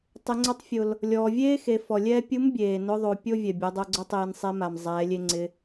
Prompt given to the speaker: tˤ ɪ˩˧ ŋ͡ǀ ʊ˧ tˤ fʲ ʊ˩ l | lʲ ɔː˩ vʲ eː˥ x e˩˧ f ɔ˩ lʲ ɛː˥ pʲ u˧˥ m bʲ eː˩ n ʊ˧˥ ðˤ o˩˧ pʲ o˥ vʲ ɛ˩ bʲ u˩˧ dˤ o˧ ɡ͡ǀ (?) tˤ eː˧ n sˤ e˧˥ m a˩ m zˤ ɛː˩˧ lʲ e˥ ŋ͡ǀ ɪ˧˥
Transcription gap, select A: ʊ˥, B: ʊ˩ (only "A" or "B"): A